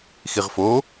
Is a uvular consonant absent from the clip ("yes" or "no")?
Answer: no